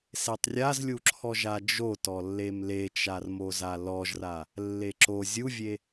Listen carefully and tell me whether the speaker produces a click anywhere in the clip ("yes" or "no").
yes